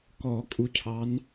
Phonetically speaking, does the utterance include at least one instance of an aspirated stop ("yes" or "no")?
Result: yes